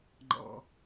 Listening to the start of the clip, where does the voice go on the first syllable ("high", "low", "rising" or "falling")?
low